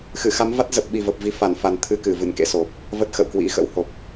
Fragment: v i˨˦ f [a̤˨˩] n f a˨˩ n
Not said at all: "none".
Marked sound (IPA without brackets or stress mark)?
a˧˩